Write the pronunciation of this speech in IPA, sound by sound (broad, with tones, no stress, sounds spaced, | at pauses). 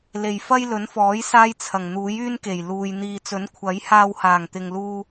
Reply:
l e˨ j f ɐ˥ j l ɵ˨˥ n f ɔː˨˥ j s aː˥ j t͡sʰ ɐ˨˩ ŋ n̪ uː˨˥ j yː˥ n k e˨˩ j l uː˨ j n̪ iː˨ t͡s ɵ˨˥ n kʷʰ ɐ˨˥ j h aː˧ w h aː˨˩ ŋ t̪ ɪ˨ ŋ l uː˥